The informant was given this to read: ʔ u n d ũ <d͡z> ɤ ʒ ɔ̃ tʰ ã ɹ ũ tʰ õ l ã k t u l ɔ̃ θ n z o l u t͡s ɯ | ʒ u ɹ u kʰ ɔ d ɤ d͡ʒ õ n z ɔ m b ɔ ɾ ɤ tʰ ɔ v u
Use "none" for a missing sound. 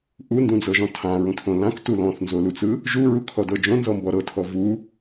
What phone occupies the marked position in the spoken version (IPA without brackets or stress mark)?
d͡z